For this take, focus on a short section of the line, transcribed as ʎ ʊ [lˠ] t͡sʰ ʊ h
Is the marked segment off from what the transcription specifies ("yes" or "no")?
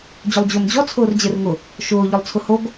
no